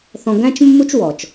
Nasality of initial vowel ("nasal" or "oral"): nasal